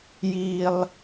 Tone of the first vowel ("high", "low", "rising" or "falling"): high